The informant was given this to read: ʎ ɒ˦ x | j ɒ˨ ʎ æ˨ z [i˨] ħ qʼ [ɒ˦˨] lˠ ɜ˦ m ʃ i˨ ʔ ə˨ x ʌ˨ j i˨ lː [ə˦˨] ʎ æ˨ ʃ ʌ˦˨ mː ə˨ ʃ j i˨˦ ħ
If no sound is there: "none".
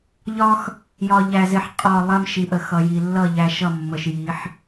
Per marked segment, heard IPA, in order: ɪ˨, ɒ˦˨, ʌ˦˨

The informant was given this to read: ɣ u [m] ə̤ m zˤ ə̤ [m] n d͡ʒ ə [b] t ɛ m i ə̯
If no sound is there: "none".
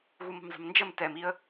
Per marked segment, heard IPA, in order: m, m, m

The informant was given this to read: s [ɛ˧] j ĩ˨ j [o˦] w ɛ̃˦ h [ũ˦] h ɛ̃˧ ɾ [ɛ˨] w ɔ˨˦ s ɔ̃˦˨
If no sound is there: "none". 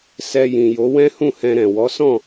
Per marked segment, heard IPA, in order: ɛ˧, o˨˦, ũ˦˨, ɛ̃˨

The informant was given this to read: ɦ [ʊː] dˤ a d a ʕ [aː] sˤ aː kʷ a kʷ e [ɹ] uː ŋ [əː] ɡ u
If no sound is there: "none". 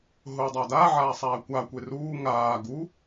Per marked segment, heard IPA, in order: ʊː, aː, r, aː

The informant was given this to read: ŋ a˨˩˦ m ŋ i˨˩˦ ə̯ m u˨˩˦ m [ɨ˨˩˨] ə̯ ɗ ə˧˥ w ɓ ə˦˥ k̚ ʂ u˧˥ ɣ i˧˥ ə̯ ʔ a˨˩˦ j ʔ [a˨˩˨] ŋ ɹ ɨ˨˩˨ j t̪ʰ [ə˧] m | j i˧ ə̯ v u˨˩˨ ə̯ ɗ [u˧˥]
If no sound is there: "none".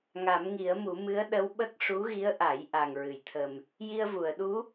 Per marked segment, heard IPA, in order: ɨ˧˥, a˨˩, ə˨˩, u˧˥

